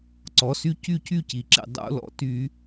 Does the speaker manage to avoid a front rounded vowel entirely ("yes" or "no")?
no